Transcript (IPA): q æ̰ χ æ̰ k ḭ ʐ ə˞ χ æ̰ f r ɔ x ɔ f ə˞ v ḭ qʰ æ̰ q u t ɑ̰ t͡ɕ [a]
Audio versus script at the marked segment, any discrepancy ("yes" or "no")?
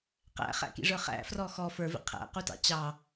yes